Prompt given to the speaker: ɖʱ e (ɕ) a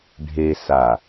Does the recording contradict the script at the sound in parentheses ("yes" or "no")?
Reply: yes